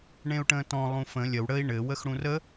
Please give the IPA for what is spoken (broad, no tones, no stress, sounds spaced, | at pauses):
ɳ ẽ u̯ ʈ ə̃ː t ɔ̃ lˠ ũ f ə̃ lʲ ə w ɽ ə i̯ ɳ ɘ w ə x ɽ ũ r ə